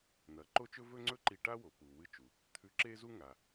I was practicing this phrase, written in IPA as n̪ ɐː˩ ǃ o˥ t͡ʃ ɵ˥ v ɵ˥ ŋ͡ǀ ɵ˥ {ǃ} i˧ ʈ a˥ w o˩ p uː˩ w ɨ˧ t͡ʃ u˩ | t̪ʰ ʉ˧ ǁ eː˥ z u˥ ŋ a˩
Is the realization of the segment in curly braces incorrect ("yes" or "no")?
no